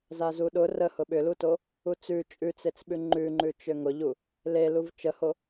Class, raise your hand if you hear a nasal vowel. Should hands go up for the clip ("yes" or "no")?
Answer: no